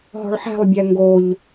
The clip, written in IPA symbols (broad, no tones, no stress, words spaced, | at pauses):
ɦɔ̤ɭħæ̤lˠbʲæ ŋɡoʎ